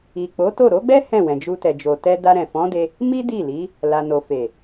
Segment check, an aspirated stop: absent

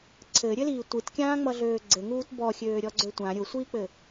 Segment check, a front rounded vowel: present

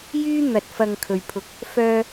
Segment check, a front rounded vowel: present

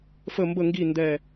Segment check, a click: absent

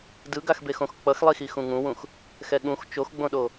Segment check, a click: absent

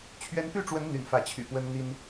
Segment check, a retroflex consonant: present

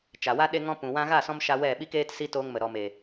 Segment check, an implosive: present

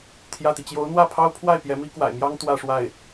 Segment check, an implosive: absent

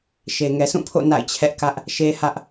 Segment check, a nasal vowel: present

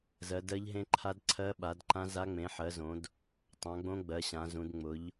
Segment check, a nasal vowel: present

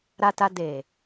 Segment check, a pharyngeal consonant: absent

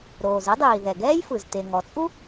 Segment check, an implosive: absent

